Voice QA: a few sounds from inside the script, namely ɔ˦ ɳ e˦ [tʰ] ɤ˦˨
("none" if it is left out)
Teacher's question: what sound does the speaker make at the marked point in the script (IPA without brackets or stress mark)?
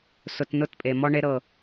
ɾ